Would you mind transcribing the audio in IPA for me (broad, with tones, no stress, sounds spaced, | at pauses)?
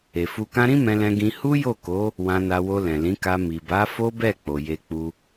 e˨ f u˧ k ã˦ ɾ ĩ˦ m ɛ̃˧ l ɛ̃˧ ɡ ĩ˧ h u˦ j o˦˨ k o˨˦ | w ã˧ n a˧ w o˧ l ɛ̃˨ l ĩ˨˦ k a˧ m i˨ b a˨˦ f o˦ b ɛ˦˨ k͡p o˨ j e˧ k͡p u˧